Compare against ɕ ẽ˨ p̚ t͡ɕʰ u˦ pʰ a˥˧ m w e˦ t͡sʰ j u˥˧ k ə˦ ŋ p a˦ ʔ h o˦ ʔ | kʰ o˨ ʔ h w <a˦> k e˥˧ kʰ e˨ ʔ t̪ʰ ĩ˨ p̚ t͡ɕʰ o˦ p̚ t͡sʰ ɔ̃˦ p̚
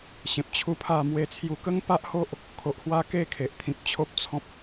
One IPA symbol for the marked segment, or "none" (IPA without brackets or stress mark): a˥˧